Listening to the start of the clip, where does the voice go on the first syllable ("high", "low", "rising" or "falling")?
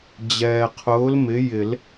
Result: low